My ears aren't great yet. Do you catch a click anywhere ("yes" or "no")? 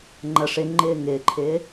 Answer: yes